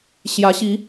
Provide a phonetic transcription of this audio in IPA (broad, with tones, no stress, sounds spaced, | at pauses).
ɕ j ä˨˦ ɕ i˨˦